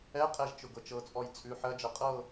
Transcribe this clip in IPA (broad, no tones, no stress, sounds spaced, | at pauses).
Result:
ɛ qʼ ɛ ʒ t͡ʃ ʊ ɡ ɤ t͡ʃ ɤ t͡sʼ ɔ j t͡sʼ ʉ ħ ɜ d͡ʒ ɜ qʼ ɤ